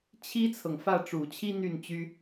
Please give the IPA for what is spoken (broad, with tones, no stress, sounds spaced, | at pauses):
t͡ɕʰ i˥ t͡sʰ ɤ˨ ŋ f ä˥˩ ʈ͡ʂ u˨˩ t͡ɕʰ i˥ n̪ y˥˩ n t͡ɕ y˥